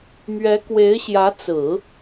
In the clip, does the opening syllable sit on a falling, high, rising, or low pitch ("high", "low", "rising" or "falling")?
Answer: rising